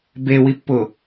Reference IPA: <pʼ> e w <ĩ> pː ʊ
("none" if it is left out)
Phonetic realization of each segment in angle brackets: b, i

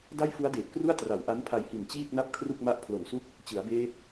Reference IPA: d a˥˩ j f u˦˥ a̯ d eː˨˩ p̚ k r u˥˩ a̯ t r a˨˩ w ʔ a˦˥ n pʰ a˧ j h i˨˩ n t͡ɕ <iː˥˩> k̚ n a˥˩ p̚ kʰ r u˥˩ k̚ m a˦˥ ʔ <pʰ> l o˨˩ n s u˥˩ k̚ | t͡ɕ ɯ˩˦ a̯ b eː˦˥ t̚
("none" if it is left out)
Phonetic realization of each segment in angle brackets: iː˥˩, pʰ

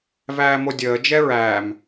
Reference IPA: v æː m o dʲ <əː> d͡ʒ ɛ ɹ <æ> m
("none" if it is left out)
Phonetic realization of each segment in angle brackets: əː, æː

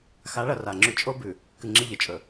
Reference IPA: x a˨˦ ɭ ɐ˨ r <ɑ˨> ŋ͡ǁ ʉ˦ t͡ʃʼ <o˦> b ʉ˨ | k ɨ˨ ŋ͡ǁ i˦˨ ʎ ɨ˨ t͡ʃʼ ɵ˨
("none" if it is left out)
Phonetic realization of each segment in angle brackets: a˨, o˦

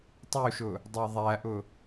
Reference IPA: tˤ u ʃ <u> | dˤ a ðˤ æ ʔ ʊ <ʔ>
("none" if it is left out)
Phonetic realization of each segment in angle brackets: ʊ, none

